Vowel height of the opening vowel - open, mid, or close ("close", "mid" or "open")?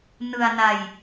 close